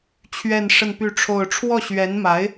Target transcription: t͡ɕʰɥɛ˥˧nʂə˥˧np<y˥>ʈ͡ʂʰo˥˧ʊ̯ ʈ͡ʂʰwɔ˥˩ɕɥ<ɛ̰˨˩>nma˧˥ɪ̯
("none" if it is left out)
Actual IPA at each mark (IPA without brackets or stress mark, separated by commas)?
y˥˧, ɛ˧˥